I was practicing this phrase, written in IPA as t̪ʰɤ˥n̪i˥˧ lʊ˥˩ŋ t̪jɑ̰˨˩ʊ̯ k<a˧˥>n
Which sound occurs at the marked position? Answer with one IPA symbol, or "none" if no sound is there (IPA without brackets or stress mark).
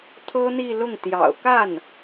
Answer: a˥˩